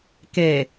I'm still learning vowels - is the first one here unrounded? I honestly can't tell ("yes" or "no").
yes